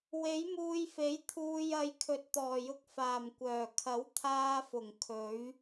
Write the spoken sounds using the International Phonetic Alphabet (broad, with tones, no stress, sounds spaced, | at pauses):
w e˨˥ j m uː˧ j f e˨˥ j t̪ʰ uː˨ j ɐ˨˧ j kʰ ɵ˨ t̚ t̪ ɔː˨˩ j ʊ˧ k̚ f aː˨˩ m kʷ œː˨˩ kʰ ɐ˨˥ w t̪ʰ aː˧ f ʊ˨˩ ŋ kʰ ɵ˨˥ ɥ